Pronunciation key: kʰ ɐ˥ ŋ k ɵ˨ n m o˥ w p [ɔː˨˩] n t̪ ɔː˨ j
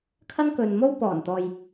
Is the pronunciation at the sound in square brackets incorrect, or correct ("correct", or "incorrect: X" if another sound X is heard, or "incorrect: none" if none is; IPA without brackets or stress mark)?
correct